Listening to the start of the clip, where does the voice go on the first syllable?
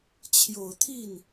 low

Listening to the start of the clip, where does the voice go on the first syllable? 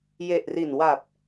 low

